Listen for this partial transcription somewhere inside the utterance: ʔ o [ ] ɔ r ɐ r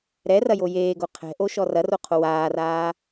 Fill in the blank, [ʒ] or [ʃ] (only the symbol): ʃ